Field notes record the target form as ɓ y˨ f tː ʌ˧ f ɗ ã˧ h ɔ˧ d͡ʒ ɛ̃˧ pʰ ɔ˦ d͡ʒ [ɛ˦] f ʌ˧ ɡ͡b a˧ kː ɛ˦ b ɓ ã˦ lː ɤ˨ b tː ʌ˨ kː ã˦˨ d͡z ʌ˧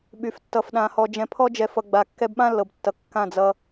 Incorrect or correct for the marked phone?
incorrect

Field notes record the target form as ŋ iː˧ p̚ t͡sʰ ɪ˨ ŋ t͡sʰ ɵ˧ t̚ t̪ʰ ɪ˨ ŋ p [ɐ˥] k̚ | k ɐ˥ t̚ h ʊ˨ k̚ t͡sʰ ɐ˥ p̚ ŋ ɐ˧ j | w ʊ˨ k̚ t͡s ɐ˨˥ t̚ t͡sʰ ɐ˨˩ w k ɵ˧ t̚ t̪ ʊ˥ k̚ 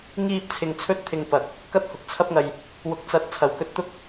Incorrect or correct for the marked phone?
incorrect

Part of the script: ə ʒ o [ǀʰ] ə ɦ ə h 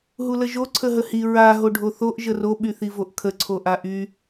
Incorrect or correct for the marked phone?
correct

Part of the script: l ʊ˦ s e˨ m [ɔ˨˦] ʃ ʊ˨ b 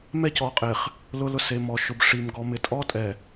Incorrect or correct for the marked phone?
incorrect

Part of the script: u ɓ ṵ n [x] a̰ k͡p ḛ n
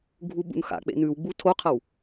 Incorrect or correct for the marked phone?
correct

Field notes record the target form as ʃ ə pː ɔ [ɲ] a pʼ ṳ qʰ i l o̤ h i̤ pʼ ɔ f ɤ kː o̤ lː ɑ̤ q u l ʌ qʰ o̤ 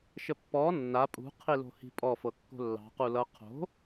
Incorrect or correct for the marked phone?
incorrect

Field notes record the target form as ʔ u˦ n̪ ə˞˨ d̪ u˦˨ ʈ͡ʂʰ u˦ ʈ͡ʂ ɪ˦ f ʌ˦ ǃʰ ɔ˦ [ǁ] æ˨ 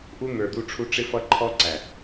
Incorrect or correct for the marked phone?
incorrect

